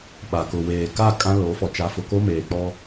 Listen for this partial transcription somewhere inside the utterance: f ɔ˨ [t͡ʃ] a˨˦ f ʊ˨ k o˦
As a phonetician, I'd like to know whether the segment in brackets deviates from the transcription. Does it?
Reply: no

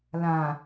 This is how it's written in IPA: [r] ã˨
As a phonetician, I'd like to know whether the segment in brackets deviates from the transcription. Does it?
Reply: yes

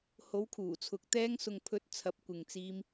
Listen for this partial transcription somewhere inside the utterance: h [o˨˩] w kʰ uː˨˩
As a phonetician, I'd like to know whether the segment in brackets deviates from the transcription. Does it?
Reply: yes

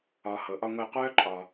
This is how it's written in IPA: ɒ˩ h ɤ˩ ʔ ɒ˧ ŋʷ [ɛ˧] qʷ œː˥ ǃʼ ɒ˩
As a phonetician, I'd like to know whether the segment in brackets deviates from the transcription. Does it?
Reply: no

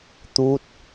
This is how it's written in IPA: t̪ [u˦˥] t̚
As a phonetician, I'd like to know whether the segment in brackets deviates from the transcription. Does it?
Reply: no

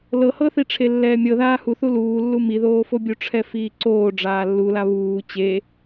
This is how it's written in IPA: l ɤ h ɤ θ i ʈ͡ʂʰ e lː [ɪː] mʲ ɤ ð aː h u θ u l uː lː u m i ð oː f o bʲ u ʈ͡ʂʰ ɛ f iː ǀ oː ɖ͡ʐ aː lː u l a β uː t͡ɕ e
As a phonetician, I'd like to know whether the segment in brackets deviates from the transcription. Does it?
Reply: yes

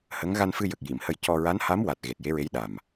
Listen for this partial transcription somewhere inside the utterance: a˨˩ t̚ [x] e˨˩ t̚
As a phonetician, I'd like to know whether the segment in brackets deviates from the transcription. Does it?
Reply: yes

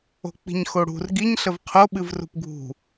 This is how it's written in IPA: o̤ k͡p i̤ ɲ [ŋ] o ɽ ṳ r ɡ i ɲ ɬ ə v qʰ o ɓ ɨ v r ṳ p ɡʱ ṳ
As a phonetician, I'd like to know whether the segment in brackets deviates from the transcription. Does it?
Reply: yes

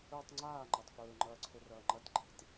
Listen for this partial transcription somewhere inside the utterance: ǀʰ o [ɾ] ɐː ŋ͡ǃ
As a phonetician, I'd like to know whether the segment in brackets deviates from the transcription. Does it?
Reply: yes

